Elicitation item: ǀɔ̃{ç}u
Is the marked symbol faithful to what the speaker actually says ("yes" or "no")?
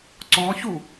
yes